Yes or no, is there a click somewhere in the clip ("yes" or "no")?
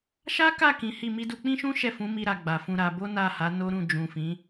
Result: no